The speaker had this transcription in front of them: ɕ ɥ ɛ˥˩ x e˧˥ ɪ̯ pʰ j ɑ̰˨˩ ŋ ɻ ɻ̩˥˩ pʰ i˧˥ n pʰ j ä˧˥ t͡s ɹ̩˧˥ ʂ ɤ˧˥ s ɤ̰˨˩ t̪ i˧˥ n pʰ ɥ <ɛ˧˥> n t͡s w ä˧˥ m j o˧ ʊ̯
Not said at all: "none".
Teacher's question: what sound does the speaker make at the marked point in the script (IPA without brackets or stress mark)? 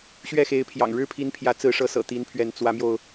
ɛ˧˥